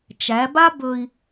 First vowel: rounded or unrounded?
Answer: unrounded